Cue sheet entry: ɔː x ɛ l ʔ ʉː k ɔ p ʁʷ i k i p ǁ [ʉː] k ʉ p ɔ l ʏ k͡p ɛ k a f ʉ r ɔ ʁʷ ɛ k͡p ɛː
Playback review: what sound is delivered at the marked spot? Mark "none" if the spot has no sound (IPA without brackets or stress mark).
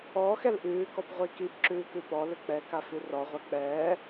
ʉː